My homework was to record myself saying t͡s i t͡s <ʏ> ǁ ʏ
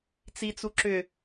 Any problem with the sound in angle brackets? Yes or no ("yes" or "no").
yes